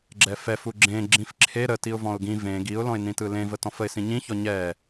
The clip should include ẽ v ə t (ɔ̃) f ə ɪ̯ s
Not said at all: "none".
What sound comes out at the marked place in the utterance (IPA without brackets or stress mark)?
ɔ̃